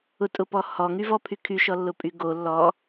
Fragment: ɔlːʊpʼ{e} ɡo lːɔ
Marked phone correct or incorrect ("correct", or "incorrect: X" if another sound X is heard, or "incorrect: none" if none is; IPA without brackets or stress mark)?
incorrect: y